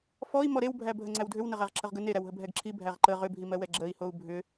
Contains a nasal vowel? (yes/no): no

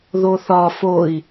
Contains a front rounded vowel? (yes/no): no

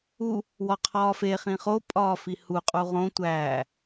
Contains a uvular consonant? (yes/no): yes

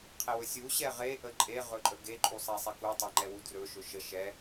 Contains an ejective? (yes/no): yes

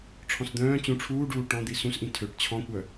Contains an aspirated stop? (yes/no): yes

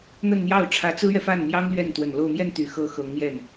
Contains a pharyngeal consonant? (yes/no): no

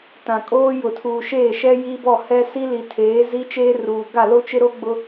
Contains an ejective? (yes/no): yes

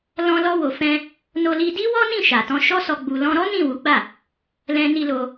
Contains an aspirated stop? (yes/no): no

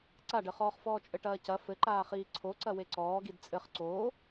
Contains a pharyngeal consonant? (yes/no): no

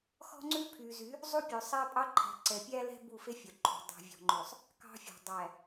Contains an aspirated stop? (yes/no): yes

